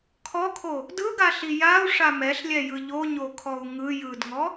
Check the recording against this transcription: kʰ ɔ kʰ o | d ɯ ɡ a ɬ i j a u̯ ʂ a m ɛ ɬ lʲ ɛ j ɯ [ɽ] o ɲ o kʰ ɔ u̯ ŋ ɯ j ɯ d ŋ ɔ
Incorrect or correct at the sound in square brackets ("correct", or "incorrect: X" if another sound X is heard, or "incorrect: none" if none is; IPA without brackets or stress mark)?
incorrect: ʎ